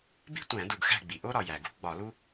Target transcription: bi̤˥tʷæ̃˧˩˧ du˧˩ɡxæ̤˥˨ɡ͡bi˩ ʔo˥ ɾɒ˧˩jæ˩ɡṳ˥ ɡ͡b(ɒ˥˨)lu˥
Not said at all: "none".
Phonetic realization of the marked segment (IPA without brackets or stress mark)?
ɒ˧˩˧